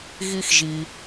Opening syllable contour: high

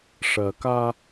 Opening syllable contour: low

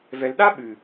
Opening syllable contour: low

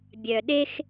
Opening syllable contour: low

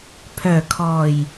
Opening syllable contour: low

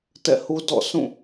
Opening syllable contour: falling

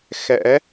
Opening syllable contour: rising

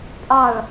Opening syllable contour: falling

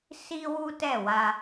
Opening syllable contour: high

